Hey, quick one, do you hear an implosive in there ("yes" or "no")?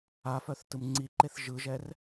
no